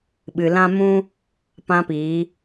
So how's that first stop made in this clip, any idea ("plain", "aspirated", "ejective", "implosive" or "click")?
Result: implosive